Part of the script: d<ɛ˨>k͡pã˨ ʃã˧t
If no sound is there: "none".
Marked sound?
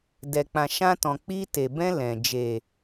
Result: ɛ˨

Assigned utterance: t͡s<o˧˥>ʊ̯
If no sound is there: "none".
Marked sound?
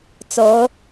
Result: o˧˥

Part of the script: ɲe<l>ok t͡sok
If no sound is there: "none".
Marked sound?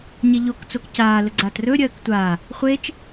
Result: ʎ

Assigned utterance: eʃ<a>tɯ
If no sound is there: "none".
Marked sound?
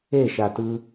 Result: a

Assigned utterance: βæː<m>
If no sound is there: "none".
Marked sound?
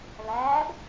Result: b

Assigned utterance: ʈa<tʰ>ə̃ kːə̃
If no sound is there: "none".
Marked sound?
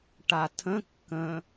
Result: tʰ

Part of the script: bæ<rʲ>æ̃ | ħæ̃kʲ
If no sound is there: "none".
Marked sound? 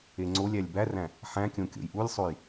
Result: r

